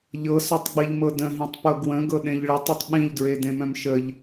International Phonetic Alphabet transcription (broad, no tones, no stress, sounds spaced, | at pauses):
ʎ ɤ s œ tˤ ɡ͡b i ʎ m ɤ d ə̃ ɦ ĩ tˤ p ɤ ɡ w ə̃ ɡ ɤ ɗ ẽ ʎ ɭ ə tˤ i tˤ ɓ ĩ ʎ d ɹ e d ẽ m œ̃ m ʃ ə ʎ